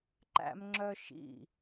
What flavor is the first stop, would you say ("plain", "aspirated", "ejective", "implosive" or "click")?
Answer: click